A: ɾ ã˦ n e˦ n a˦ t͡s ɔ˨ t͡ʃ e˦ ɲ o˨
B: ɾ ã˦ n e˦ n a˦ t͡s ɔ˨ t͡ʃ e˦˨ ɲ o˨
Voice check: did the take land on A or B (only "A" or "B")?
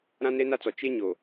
A